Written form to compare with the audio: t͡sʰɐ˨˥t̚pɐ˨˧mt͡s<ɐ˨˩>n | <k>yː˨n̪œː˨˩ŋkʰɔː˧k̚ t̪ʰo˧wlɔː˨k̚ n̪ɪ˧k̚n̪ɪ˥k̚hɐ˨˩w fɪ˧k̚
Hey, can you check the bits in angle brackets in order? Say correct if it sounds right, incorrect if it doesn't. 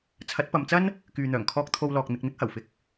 incorrect: ɐ˥, correct

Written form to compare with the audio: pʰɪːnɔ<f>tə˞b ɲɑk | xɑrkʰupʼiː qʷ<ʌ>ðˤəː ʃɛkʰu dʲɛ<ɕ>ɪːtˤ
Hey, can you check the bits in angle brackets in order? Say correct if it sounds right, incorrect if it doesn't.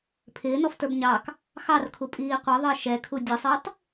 correct, incorrect: ə˞, incorrect: sˤ

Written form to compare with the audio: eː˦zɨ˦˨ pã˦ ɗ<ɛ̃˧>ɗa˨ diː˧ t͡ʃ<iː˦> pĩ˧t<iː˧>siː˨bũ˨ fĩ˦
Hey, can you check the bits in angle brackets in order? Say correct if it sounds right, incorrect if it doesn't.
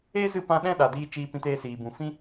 incorrect: ɛ̃˦, incorrect: iː˧, incorrect: eː˧

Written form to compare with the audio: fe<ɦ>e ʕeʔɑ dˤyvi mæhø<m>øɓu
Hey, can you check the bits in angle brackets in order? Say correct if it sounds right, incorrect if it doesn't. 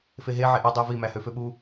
correct, incorrect: f

